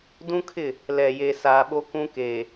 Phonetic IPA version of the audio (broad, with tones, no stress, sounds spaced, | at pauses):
d ũ˦ kʰ ɪ˦˨ | l ɛ˨ j e˨ s aː˨ ɓ o˦ k ũ˦ k eː˨